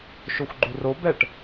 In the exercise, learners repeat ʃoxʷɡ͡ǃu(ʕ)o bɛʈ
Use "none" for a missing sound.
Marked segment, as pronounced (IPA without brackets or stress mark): r